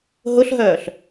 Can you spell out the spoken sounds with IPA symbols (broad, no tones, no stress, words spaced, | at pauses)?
ɦʊɬɦœːɬ